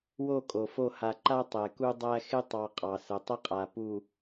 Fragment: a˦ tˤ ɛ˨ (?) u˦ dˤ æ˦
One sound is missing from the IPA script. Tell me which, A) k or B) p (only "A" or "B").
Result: A